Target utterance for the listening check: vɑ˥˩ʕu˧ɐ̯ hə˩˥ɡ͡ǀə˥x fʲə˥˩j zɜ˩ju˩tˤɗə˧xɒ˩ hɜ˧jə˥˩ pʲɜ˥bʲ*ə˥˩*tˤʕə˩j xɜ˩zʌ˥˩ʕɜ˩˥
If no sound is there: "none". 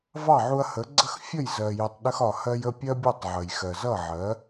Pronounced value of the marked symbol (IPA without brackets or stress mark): ʌ˥˩